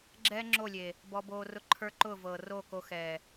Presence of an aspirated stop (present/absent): present